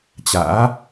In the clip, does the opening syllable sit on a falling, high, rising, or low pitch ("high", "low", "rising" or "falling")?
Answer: rising